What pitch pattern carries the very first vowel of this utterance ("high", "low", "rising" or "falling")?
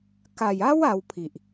low